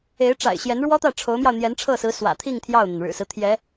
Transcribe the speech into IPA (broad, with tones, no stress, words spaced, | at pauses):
e˧˥ɪ̯ʈ͡ʂa̰˨˩ɪ̯ɕjɛ˧˥n ɻwɔ˥t̪ä˥˩ʈ͡ʂʰo˧˥ʊ̯mjɑ˧ʊ̯ n̪jɛ˧˥nʈ͡ʂʰɤ˥˩sɹ̩˧˥ swä̰˨˩t̪ʰi˥˧ŋ t̪ʰjɑ˥˩ʊ̯n̪a˩nɻɻ̩˨˩sɹ̩˦ t̪ʰjɛ˧˥